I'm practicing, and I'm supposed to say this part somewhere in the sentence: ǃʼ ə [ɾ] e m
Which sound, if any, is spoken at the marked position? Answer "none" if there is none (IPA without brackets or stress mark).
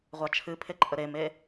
ɾ